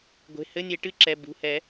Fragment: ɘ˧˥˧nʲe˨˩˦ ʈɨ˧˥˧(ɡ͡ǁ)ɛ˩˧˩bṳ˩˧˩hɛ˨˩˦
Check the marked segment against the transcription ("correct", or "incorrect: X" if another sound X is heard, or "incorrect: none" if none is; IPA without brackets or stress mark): incorrect: ǁ